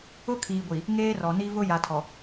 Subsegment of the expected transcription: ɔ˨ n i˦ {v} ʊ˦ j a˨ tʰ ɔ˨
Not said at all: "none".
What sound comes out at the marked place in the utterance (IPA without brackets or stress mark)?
v